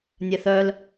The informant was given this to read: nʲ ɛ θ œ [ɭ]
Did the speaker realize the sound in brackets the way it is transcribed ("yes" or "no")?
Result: no